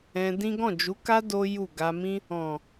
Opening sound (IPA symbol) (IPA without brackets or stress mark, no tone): ɛ̃